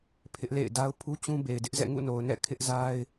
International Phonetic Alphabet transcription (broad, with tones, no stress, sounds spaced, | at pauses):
pʰ ɪ˦ ʔ l ḛ˦˨ ɪ̯ d a˦ ʊ̯ pʰ u˦ t͡ɕ ũ˦ b e˨ ɪ̯ d ɪ˦ ʔ z ɛ̰˦˨ ŋ ṵ˦˨ n o˨ ʊ̯ n ɛ̰˦˨ kʰ ɪ˦ ʔ z a˦ ɪ̯